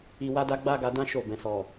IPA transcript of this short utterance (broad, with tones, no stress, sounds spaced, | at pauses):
i˨ w a˧ d a˧ ɡ͡b a˦ ɡ a˧ d ã˦ ʃ o˦˨ b ɛ̃˨ s ɔ˨